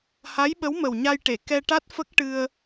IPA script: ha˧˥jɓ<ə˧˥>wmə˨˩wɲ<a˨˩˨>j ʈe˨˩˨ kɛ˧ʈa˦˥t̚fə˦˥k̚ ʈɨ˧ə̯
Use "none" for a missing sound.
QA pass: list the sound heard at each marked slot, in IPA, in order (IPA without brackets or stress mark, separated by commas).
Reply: ə˧˥, a˧